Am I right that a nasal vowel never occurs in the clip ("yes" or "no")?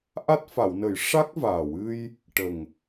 yes